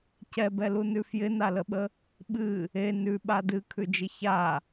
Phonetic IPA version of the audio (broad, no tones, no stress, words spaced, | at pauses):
cɛbɛlunʉ fjɪnaləɓə | ɓɨ | e nʉɓa dɨkʰʉd͡ʒɪ ça